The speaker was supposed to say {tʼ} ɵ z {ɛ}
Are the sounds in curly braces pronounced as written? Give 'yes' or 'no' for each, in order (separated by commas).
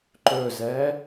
no, yes